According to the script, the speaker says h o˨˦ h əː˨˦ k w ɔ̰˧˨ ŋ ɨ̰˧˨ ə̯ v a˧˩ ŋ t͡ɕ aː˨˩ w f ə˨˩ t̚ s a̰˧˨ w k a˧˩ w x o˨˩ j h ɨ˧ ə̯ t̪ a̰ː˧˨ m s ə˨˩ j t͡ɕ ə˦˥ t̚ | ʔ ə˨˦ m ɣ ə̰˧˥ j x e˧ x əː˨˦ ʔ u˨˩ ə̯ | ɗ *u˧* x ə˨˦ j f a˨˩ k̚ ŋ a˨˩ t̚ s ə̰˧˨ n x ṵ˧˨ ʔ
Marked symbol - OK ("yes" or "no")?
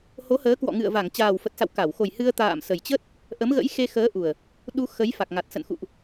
yes